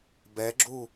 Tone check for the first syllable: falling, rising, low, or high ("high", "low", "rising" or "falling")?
rising